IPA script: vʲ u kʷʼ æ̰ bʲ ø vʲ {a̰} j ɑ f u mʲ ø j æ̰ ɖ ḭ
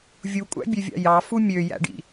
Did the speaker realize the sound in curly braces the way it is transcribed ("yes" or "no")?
no